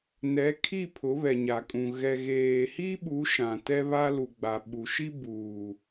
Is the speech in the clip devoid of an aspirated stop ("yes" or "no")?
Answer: no